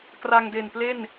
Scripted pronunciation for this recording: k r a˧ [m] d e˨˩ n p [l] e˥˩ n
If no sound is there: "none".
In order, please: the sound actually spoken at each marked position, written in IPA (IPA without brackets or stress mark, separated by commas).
ŋ, l